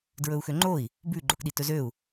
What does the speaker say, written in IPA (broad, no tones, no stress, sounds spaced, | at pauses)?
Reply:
d ɹ ɵ u̯ x ø ŋ͡ǃ o i̯ | b ʉ ɡ͡ǃ o k ɗ i t ɵ z ø u̯